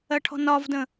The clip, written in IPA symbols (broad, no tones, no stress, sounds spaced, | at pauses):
ɜ ʈʰ ɔ̤ n ɒ v d ə̃